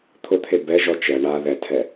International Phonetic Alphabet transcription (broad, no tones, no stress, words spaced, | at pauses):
t̪ʰʊt̪ʰe bɛ ʒɔt͡ʃɛ ɳa ðɛtʰɛ